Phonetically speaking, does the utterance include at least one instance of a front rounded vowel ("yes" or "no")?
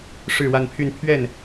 yes